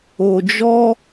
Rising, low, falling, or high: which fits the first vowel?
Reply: low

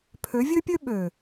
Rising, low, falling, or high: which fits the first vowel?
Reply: rising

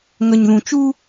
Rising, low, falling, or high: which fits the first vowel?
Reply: low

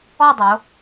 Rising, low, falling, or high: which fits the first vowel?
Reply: falling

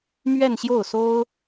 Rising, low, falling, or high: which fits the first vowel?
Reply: falling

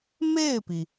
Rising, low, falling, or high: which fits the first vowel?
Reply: falling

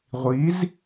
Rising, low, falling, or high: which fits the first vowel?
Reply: rising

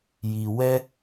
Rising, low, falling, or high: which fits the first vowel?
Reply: low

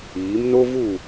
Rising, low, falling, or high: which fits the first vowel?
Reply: rising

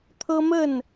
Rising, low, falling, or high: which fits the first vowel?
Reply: high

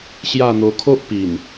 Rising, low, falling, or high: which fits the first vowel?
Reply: falling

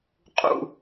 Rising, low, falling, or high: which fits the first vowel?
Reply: low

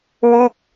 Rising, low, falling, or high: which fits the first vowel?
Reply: falling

